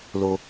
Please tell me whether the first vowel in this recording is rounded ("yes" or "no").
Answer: yes